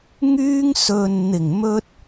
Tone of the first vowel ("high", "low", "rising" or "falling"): high